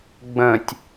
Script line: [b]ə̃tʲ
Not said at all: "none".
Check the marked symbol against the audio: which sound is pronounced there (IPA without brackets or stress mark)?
ɡ͡b